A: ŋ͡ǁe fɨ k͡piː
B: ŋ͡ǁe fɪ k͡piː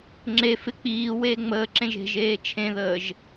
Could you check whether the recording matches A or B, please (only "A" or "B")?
B